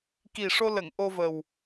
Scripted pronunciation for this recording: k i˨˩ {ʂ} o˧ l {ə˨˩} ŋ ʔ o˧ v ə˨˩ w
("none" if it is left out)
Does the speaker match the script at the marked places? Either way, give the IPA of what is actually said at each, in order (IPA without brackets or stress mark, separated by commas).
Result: ʂ, ə˨˩˨